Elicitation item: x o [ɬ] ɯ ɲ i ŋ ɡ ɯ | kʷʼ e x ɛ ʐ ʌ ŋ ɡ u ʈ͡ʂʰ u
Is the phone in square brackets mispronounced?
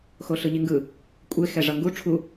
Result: no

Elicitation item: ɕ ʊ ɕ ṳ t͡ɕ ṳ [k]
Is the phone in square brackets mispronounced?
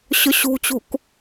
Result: no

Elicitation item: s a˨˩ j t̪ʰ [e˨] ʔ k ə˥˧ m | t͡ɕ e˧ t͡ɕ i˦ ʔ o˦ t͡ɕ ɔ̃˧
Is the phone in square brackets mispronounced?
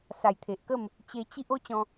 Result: no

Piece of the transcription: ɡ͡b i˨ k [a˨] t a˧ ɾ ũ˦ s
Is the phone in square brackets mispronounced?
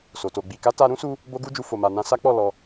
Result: yes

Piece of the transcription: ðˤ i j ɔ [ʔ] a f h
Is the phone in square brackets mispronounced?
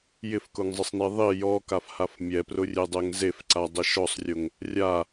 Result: yes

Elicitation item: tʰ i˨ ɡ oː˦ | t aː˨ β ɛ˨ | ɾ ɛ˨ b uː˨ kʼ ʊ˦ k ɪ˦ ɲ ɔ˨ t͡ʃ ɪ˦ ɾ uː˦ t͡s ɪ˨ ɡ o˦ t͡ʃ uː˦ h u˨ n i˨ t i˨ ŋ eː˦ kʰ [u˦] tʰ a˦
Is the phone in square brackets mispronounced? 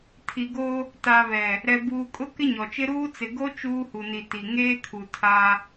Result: yes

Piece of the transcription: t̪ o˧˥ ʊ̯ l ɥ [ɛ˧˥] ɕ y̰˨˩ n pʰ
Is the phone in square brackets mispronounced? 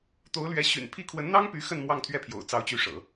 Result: no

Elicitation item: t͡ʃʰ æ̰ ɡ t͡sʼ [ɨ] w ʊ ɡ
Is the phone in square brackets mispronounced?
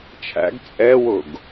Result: yes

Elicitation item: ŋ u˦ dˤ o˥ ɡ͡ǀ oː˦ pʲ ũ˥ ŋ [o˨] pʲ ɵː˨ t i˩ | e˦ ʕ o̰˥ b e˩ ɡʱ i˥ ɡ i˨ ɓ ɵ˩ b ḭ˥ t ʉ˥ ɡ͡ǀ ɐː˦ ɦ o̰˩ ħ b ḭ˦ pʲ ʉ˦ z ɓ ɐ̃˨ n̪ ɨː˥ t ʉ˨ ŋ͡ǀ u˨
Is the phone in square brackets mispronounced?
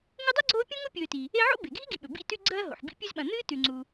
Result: yes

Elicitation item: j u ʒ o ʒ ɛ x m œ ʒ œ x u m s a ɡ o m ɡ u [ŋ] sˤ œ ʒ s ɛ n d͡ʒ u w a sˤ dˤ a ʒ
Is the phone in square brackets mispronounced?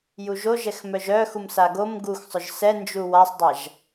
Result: yes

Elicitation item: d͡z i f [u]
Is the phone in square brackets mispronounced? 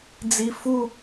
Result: no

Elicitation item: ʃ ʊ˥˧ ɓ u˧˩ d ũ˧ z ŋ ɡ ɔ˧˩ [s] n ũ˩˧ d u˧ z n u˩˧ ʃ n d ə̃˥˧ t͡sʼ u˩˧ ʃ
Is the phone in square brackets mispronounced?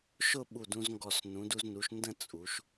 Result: no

